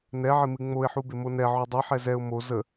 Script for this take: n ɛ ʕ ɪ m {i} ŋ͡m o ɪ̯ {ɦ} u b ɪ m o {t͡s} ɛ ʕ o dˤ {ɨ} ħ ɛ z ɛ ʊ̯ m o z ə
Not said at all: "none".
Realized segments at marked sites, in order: ɨ, ħ, n, ɨ

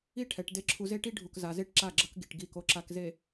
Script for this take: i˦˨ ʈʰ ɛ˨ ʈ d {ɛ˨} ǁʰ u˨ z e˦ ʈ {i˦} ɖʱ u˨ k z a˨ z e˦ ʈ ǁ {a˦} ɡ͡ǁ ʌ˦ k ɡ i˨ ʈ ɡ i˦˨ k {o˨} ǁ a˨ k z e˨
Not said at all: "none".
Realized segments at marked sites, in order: e˨, i˦, a˦˨, o˨

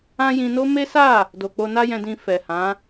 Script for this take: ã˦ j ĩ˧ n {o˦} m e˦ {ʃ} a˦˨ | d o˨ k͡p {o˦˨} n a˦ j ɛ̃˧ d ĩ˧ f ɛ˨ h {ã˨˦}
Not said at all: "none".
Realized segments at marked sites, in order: o˦, s, o˧, ã˨˦

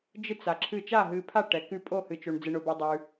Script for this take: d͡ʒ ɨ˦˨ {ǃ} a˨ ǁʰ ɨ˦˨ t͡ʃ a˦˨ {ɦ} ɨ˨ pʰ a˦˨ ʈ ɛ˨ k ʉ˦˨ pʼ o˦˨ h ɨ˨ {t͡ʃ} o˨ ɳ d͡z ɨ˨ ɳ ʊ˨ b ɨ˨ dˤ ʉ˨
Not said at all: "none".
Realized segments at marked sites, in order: t͡s, ɦ, t͡ʃ

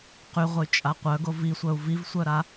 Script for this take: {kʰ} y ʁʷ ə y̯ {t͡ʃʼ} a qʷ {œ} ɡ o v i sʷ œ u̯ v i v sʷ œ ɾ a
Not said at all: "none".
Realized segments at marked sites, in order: q, t͡ʃʼ, œ

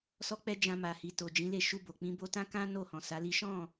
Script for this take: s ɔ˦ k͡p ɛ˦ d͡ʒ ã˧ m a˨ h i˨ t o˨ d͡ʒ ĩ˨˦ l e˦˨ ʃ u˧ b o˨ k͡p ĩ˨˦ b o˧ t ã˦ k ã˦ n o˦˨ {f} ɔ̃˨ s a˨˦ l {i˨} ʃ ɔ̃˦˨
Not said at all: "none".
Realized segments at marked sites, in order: h, i˦

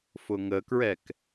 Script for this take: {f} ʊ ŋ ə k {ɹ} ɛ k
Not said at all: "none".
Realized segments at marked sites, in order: f, ɹ

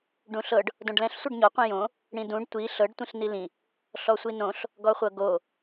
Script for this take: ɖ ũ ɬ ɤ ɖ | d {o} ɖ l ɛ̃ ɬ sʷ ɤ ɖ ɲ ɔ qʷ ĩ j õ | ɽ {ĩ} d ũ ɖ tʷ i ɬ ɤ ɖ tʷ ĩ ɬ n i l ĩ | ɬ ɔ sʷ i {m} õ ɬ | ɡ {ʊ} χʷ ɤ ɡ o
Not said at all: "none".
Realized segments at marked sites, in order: õ, ĩ, n, ɔ

